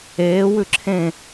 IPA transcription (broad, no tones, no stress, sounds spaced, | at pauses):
eː w ʉ ǁʰ ẽ